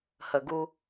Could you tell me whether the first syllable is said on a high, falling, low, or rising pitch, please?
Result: low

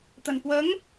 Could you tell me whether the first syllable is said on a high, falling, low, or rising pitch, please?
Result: low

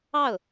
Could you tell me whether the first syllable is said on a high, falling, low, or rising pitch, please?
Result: falling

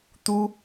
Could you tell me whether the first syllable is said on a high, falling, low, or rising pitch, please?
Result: high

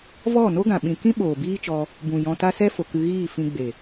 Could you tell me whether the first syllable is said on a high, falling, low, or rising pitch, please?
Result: falling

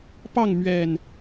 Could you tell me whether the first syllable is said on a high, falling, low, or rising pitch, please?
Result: falling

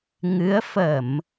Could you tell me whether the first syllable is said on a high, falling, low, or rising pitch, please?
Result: rising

